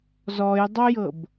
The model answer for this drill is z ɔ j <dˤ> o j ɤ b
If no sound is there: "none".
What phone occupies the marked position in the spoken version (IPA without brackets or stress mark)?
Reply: dˤ